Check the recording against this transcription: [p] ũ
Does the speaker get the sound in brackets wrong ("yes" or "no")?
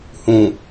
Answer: yes